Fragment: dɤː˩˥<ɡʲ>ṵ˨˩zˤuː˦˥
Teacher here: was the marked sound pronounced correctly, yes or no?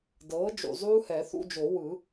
no